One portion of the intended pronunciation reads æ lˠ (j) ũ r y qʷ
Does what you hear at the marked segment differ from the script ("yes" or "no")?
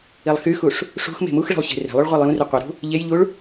no